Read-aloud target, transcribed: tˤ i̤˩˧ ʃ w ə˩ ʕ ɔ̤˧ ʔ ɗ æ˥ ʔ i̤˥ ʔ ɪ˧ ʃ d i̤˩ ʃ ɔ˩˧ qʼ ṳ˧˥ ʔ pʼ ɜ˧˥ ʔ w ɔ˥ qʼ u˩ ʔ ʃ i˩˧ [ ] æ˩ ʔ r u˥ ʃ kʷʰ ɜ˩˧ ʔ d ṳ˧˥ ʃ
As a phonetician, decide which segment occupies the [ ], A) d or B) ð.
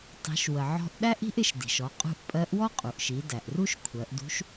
A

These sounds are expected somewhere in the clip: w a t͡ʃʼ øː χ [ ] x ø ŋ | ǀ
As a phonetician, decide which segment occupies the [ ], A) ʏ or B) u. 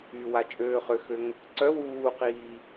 A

